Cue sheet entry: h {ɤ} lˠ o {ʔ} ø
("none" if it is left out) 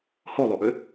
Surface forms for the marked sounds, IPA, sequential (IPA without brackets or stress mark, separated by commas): o, ʔ